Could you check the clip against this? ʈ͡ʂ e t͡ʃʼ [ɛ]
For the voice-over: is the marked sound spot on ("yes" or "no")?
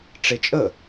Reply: no